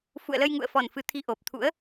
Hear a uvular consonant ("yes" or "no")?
no